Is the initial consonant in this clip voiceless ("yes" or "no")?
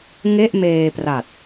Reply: no